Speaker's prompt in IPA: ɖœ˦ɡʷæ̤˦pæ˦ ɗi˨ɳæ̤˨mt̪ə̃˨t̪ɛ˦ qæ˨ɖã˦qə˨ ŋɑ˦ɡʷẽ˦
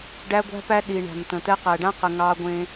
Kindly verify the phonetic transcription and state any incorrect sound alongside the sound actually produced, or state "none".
œ˦ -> æ˦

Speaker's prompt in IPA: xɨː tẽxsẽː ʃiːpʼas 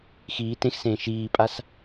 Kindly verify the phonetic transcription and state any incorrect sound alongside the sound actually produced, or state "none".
ɨː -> iː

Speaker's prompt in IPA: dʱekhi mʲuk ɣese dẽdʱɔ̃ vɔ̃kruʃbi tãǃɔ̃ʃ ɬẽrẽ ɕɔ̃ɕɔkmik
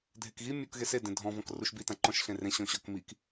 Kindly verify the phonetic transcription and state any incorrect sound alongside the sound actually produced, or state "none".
h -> ɣ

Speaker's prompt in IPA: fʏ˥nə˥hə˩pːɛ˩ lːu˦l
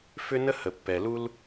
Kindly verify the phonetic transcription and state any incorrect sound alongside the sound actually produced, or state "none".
lː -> l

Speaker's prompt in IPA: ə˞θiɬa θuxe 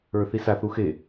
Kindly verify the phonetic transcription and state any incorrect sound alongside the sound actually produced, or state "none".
ɬ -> s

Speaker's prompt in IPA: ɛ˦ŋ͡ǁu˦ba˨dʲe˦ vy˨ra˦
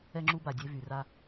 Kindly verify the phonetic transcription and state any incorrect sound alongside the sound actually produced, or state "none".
none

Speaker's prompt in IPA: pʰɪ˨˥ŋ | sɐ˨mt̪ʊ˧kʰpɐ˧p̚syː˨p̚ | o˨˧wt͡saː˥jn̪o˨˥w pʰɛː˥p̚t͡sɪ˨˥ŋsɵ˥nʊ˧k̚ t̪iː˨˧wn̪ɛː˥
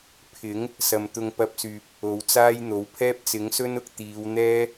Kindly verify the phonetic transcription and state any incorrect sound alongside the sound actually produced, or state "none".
kʰ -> ŋ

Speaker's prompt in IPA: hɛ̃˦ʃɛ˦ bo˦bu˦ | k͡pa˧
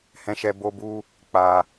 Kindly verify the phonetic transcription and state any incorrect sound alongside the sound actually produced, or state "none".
none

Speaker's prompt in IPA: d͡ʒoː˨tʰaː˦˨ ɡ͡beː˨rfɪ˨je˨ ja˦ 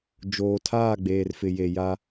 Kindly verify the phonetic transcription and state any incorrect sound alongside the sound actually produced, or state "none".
none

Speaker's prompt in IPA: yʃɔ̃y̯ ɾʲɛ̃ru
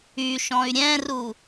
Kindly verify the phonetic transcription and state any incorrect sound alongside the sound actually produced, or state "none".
none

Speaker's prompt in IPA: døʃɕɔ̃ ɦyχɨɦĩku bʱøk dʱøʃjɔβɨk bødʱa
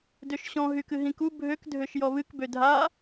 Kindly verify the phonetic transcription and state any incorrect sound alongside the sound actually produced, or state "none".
χ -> k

